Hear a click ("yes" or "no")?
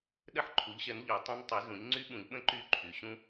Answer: yes